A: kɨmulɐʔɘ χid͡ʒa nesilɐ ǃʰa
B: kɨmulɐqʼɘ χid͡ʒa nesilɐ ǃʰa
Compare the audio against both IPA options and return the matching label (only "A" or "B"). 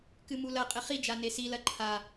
B